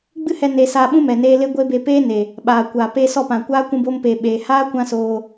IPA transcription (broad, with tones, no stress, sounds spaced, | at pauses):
ɡ͡b ɨ˦ h ɛ˧ n e˧ s aː˧ ɓ ũ˦ m ɛ˨ n eː˧ l e˦ ɡʷ e˦ b e˧ p eː˦ n e˨ | ɓ aː˨ kʷ aː˨ p e˧ s ɔ˦˨ p ã˨ kʷ aː˦ kʷ ũ˧ b oː˧ m p eː˨ ɓ eː˧ h aː˦ kʷ ã˦ s oː˧